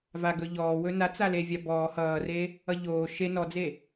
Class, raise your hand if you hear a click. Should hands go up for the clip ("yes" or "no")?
no